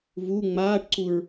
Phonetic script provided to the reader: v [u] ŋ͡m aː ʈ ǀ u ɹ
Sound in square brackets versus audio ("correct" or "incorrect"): correct